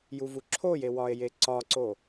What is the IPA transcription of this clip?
j u v u ǁʰ o j e w ɒ e̯ j e ǀ ɒ ǀ o

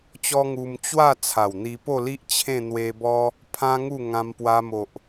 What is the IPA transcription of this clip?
t͡ɕ ɔ˦ ŋ u˧ m t͡ɕ w a˥˧ t͡sʰ a˨˩ w n̪ i˧ p o˥˧ l i˦ ʔ t͡ɕʰ ẽ˥˧ n̪ w e˧ b ɔ˦ | pʰ ã˦ ŋ u˥˧ ŋ ã˧ m p w a˧ m o˨ ʔ

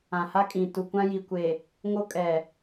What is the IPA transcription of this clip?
ã˨ h a˦ kʼ ĩ˨ t u˨ kʷ ã˦ j i˨ kʷ e˨ | ŋ o˦ kʼ ɛ˨

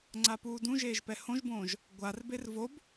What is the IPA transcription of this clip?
ŋ͡ǀ a p uː d ũ ʒ eː ʒ p ɛ h õ ʒ b õː ʒ | ɡʷ a r b e r v o b

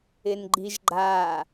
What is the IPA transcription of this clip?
ɪ n ɡ͡ǃ i ʒ ɡ͡ǃ a

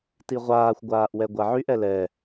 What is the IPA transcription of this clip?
t i ʁʷ aː xʷ ɡʷ aː ʔ w ɛ ɡʷ a ʕ y ʔ ɛ l ɛ

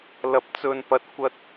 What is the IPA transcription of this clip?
l ɐ˨˥ p̚ t͡s ɵ˨ n p ɐ˨ t̚ kʷ ɐ˧ t̚

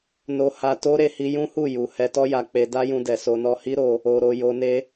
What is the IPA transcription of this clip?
n o˧ h a˧ t o˦ ɾ e˧ h i˧ j ũ˦ h u˦˨ j u˨ h ɛ˧ t ɔ˦ j a˧ k͡p e˧ d a˦ j ũ˧ d ɛ˨ s o˧ n ɔ˧ h i˦ ɾ o˧ | o˧ ɾ o˧ j o˧ n e˦

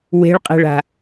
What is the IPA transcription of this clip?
w e̤ ɭ qʼ e̤ ɭ a̤

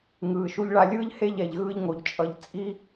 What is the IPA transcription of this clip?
ŋ ɯː˨ ʃ u˦ ʎ ɭ a˦ lʲ ɯː˦ ʎ h e˦˨ ʎ ɛ˨ ʎ ɣ ɯː˦ ʎ ŋ o˨ ʎ t͡ʃʼ ʌ˨ ʎ t͡sʼ i˦

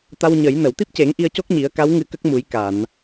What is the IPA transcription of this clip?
t̪ a˧ w ɲ ə˨˩˦ j n ə˨˩˨ w t̪ i˦˥ p̚ c e˨˩˦ ŋ ʔ i˧ ə̯ c o˦˥ k̚ ɲ i˨˩˦ ə̯ k a˧˥ w ŋ ɨ˧ k ə˦˥ k̚ m u˨˩˦ j k a˨˩˨ n

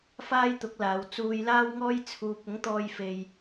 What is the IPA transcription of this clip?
f aː˥ j t̪ ʊ˨˥ k̚ l aː˨˧ w t͡s uː˧ j l aː˥ w ŋ ɔː˥ j t͡sʰ uː˧ p̚ ʊ˨˥ ŋ t̪ ɔː˧ j f e˨ j

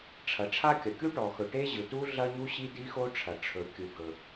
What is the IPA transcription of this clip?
ʈ͡ʂʰ ɐ˩ ʈ͡ʂʰ a˥ kʲ ɐ˩ kʲ u˥ ʈ ɔ˩ x ɵ˩ ʈ e˥ ʑ ɯ˩ t u˥ ɮ ɐ˥ ɲ u˥ ɕ i˥ d i˥ x o˥ ʈ͡ʂʰ ɐ˩ ʈ͡ʂʰ ɵ˩ kʲ ɯ˩ ɡ ɵ˩

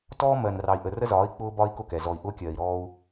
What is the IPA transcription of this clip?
t ɔː˦ m ɜ˨ n r ɑ˨ i̯ ʔ ə˨ r ə˦ z ɒː˨˦ i̯ k͡p ʊː˦ b ɒ˦ i̯ k ʊ˦˨ k ɛ˨ z ɔ˨ i̯ ʔ ʊː˦ kʲ ɜː˨ i̯ ɾ ɔː˦ u̯

